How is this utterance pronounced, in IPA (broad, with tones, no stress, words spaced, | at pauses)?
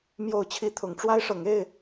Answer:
mjo˥˨ʊ̯t͡ɕʰi˦ t̪ʰʊ˨˦ŋʈ͡ʂwa˦ɪ̯ʂɤ˨˦ŋe˥˨ɪ̯